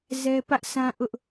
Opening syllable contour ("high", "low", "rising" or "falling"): high